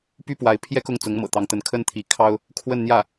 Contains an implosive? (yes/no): no